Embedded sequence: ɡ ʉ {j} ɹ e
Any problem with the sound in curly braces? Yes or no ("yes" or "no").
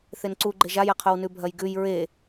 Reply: no